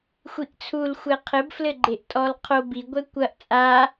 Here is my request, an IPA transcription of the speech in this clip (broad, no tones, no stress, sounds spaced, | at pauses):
xʷ i ʔ t͡sʰ u l xʷ ɛ qʰ ɘ b f l ɘ ɡ͡ǃ e ʔ tʼ ɔ l qʰ o b i ɡʷ ɛ kʷ ɐ ʔ t͡sʼ a